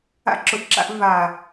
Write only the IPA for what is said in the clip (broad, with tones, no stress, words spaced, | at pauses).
a̰˧ǁʊ˨ʔǁa̰˧ʔ va˨